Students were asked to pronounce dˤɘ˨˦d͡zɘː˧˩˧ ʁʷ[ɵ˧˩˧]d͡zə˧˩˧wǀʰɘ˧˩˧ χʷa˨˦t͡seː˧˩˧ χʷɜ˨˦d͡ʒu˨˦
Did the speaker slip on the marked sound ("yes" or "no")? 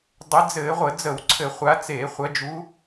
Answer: yes